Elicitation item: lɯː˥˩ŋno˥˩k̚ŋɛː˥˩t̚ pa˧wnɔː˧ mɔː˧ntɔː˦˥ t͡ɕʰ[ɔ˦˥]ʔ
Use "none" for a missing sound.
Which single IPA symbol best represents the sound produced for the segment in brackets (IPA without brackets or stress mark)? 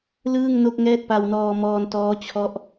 ɔ˦˥